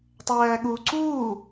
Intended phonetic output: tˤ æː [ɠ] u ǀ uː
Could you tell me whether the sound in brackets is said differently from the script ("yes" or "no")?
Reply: no